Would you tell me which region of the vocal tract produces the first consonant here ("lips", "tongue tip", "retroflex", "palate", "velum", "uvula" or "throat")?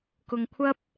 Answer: velum